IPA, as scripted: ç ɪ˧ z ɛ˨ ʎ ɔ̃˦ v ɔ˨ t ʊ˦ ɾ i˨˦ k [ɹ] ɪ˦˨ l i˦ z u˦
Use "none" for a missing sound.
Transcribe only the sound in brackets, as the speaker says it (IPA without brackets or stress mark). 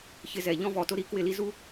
w